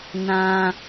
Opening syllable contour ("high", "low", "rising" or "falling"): high